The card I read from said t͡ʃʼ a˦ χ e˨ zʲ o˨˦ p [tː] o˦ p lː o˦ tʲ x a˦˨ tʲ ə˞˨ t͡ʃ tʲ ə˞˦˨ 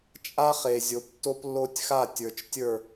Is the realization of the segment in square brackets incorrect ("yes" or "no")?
no